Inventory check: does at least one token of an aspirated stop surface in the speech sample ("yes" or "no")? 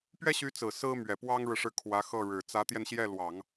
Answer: yes